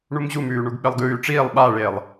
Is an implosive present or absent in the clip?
present